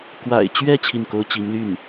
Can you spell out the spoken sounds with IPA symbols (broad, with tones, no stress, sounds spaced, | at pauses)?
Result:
k w a̰˨˩ ɪ̯ t͡ɕ ɥ ɛ˥˧ t͡ɕʰ i˥˩ n k o˥ ʊ̯ t͡ɕ i˧˥ ŋ l y˥˩ n